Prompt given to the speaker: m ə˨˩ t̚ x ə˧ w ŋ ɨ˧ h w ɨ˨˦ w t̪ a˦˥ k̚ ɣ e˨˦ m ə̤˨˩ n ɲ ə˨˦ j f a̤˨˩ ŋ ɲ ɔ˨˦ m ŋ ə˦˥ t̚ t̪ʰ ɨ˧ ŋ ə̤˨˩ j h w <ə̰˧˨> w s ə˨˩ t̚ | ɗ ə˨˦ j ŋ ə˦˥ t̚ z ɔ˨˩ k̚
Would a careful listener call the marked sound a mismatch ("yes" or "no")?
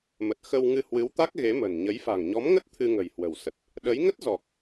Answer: yes